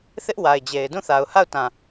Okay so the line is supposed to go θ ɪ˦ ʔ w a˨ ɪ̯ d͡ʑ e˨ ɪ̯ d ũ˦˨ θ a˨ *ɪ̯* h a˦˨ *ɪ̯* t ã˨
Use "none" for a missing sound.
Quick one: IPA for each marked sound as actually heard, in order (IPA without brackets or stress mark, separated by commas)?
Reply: ʊ̯, ʊ̯